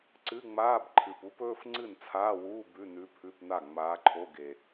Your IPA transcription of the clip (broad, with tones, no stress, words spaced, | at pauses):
ǀɨ˧˥˧ŋ͡maː˧˥˧b ǃʰɨ˨˩pu˧˥pɵː˧˥˧f ŋ͡ǀɨ˥˩nt͡sʰaː˧˥˧wuː˧˥˧ bʉ˧˥˧nʉ˧˥pʰʉ˧˥˧pna˥˩ ŋ͡maː˧˥ǃʰo˧˥˧ɡe˨˩